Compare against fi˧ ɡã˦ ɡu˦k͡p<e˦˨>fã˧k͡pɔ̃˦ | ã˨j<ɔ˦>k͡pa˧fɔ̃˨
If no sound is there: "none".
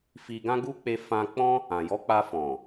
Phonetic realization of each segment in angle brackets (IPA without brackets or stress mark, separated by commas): e˧, ɔ˨˦